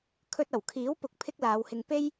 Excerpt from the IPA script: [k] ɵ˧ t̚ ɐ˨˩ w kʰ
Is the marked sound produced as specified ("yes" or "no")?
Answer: no